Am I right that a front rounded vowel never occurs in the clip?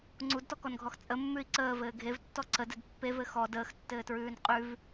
yes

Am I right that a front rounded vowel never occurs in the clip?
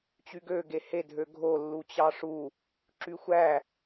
no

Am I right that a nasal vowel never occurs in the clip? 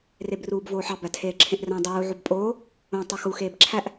no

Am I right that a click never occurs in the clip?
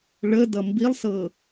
yes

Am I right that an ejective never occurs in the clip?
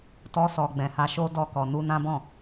yes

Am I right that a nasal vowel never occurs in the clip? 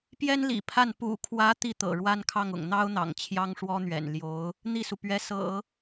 yes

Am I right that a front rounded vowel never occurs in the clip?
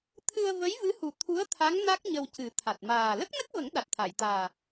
yes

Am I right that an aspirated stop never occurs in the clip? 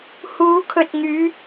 no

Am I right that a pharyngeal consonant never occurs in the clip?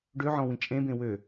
no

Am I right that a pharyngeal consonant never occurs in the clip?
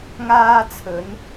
yes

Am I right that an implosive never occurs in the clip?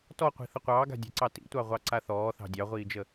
yes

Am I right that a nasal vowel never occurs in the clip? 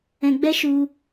no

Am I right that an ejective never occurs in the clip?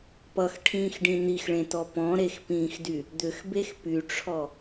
yes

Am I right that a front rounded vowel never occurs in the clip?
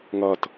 yes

